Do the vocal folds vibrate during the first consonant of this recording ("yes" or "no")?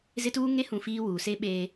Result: yes